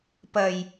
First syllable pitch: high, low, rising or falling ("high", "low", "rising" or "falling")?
low